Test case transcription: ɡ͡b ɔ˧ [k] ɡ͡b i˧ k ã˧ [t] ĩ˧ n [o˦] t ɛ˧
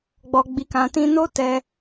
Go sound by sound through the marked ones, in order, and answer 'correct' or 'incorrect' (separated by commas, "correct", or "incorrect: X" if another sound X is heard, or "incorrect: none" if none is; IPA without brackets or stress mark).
incorrect: none, correct, correct